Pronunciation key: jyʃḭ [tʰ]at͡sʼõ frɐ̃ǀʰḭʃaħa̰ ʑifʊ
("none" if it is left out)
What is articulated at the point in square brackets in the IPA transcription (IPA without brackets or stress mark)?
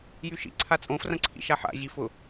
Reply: ǀʰ